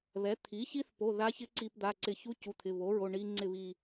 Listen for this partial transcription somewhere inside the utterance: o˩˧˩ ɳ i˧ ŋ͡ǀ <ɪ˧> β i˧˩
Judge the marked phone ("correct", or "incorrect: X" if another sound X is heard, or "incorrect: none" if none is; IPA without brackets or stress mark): incorrect: ɪ˥˨